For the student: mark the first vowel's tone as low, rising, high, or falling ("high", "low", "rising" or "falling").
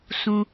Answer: high